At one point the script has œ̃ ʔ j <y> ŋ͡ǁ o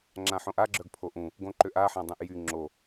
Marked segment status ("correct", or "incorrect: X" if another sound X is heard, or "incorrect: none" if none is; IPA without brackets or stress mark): correct